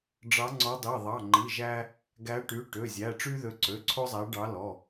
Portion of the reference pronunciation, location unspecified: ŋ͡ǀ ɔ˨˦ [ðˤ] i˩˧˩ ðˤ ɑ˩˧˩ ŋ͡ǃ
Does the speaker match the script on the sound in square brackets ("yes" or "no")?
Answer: no